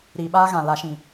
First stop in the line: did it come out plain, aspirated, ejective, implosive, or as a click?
implosive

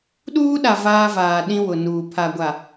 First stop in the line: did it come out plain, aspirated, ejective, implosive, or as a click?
implosive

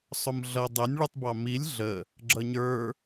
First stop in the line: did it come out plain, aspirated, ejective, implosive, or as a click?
plain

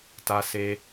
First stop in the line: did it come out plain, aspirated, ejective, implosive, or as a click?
plain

